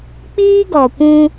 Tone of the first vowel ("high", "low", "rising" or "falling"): high